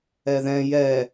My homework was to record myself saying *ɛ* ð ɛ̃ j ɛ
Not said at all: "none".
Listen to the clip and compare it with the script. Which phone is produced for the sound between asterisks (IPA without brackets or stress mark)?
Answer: ɛ